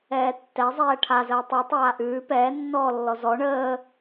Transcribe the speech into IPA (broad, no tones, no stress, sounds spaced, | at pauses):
ɛː tː ɛ zˤ ɛː ʈʰ a z əː tˤ ʉ tˤ aː ʔ ʉː p ɛː nː ɔː lː ɔ z ɔ ɳ əː